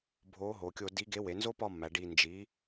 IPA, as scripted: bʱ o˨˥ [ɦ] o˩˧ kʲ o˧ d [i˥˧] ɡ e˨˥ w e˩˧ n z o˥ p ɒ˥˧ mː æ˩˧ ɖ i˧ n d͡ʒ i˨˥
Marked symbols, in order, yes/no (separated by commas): yes, no